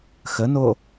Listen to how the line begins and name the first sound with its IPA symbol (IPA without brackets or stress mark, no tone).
x